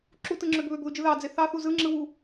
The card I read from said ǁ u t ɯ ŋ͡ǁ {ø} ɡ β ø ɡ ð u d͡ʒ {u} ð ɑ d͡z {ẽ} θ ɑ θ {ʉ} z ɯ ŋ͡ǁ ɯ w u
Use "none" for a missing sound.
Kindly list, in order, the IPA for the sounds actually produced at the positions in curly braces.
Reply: ø, ɯ, e, u

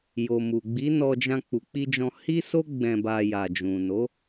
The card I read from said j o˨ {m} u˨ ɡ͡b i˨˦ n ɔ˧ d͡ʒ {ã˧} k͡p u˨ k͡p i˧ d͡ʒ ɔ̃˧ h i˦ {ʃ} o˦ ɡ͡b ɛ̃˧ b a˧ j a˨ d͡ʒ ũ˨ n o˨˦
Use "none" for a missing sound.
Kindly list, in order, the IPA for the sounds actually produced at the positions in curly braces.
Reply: m, ã˧, s

